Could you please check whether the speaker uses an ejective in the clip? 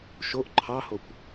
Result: no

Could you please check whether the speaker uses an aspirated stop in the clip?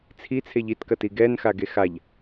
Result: yes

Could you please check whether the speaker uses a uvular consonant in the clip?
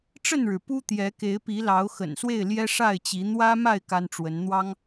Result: no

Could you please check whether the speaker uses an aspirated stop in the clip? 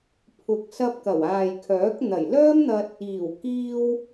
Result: yes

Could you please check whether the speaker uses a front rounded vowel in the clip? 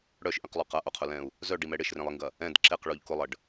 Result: yes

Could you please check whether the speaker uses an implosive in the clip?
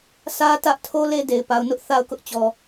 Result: no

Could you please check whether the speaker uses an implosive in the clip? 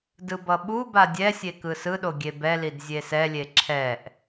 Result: yes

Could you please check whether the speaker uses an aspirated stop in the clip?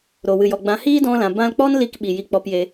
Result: no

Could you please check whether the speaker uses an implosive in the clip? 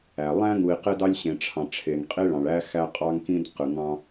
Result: no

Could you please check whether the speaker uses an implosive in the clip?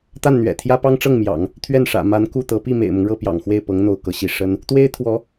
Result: no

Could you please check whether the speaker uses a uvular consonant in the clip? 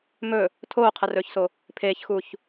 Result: yes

